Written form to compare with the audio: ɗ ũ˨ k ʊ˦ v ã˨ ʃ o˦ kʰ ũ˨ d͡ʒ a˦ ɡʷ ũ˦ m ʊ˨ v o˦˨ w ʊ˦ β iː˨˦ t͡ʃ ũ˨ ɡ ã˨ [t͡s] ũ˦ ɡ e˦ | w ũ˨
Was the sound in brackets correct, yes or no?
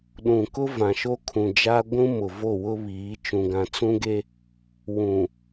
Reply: yes